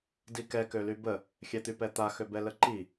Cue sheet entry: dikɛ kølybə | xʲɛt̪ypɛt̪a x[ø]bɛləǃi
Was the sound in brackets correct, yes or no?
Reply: yes